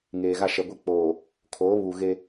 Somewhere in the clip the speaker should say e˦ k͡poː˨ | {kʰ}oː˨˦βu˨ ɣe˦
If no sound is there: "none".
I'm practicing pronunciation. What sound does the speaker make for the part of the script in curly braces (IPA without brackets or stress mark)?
kʰ